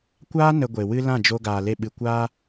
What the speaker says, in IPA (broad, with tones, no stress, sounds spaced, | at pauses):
kʷ aː˦ n ə˧ ɡʷ e˨ w ɨ˦ l ã˦˨ d͡ʒ o˧ ɡ aː˨ l e˧ ɓ ɨ˨ kʷ aː˦